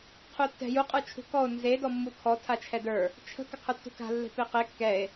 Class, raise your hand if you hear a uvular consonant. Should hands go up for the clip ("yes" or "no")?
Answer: yes